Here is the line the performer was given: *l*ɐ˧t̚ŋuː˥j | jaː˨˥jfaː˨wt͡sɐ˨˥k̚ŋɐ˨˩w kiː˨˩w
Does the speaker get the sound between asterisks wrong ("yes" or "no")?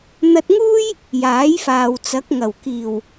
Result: yes